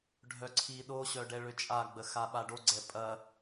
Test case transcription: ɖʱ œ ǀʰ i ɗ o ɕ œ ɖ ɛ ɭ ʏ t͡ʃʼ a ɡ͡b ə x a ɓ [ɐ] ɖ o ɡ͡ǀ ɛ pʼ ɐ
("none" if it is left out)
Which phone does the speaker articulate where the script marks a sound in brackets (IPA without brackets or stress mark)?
a